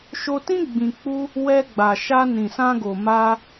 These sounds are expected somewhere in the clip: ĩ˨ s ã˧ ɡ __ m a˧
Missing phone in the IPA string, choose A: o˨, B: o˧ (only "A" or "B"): A